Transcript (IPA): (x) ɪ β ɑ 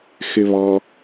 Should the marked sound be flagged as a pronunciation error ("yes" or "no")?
no